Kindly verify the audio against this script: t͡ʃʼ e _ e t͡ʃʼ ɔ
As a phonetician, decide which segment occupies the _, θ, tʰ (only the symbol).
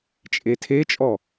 tʰ